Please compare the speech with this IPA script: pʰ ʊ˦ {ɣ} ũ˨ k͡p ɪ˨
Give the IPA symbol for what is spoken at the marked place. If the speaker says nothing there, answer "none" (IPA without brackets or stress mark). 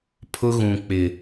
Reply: ɣ